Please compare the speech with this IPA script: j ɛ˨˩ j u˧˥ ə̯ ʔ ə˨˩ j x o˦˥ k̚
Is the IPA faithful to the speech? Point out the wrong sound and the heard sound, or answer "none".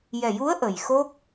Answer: none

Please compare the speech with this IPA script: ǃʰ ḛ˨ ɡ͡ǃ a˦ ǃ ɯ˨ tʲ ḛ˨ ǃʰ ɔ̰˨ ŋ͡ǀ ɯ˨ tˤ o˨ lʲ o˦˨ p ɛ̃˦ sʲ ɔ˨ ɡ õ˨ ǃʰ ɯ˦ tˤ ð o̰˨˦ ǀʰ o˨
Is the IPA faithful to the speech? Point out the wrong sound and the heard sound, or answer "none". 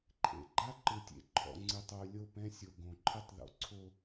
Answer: ɔ˨ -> o˨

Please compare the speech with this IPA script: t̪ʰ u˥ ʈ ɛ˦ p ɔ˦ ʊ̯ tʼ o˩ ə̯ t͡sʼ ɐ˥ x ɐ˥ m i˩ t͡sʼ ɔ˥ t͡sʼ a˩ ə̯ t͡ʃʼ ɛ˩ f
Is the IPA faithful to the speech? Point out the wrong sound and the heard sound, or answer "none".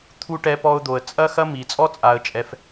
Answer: tʼ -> d̪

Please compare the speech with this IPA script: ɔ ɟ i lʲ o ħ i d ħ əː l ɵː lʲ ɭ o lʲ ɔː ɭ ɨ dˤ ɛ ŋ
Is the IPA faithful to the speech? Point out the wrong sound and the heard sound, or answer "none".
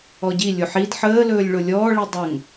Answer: ɨ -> i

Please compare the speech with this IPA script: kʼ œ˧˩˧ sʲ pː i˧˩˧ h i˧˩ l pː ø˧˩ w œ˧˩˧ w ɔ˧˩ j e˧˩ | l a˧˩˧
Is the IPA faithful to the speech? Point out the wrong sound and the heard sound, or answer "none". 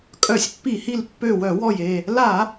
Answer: none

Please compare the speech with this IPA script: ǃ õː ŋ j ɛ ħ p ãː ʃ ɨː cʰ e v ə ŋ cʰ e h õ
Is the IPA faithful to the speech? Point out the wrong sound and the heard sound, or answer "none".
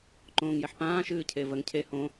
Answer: none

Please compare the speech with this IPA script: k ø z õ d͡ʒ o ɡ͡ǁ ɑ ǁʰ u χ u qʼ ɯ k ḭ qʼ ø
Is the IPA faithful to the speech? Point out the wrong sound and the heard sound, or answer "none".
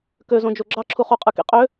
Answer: none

